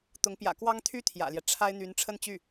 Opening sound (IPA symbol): t̪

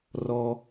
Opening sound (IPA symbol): r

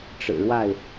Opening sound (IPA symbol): ʈ͡ʂ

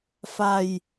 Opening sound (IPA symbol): f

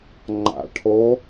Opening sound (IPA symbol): ŋ͡ǃ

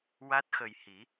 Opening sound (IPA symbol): w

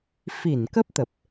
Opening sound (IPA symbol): f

